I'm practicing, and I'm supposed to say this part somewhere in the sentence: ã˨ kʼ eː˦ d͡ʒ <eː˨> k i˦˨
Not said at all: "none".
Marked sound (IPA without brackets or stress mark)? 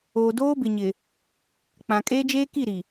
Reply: eː˦